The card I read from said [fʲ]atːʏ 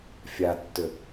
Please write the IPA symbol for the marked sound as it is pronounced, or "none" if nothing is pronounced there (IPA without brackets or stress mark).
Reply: fʲ